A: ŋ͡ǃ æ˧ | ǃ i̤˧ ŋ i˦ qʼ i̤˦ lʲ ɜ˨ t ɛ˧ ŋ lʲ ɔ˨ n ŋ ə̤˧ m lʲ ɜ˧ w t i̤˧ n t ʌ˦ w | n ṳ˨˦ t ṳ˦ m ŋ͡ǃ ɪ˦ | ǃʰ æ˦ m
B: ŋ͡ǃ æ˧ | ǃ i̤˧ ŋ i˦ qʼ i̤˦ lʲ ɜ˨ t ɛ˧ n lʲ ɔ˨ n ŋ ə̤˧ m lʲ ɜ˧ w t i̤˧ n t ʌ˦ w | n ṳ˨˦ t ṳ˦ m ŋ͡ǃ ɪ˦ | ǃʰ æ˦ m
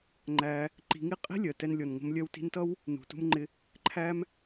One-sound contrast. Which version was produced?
B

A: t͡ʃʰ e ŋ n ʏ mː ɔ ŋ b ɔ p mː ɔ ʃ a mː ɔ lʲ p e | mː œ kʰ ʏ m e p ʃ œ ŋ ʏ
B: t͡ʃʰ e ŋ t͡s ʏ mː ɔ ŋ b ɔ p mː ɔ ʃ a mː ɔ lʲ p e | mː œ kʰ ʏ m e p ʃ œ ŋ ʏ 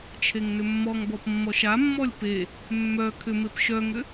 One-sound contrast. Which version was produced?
A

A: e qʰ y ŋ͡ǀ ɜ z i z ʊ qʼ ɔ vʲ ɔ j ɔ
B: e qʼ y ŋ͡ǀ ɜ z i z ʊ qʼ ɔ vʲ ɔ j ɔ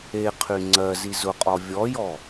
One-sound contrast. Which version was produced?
A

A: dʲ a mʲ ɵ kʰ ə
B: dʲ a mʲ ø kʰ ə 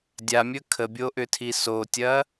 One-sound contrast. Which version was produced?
A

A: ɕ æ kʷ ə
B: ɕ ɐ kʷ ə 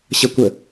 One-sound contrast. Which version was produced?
B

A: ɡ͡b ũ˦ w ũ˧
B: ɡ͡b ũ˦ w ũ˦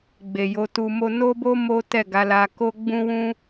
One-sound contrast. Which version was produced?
B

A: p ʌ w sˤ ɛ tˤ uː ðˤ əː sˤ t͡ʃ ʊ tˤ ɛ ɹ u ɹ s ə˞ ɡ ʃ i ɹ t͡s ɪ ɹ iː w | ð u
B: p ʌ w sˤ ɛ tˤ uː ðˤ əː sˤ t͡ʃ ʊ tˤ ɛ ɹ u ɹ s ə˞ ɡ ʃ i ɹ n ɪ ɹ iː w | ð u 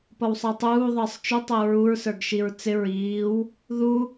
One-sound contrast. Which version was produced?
A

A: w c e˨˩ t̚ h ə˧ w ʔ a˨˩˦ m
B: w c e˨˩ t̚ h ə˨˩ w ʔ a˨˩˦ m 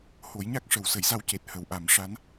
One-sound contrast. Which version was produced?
B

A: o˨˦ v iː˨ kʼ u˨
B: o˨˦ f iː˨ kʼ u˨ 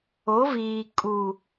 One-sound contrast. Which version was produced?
A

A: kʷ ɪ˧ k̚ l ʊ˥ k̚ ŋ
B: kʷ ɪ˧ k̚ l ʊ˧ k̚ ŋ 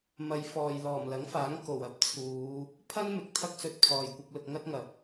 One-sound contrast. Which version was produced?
B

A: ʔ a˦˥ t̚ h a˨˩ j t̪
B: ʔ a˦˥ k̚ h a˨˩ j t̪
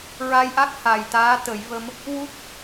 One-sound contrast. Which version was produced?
B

